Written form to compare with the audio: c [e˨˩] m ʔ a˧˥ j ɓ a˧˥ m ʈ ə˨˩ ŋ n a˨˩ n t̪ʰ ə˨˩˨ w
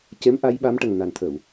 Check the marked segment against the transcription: incorrect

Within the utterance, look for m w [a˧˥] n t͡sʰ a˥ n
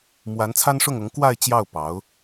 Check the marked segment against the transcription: correct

